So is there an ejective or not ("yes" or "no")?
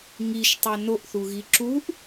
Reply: no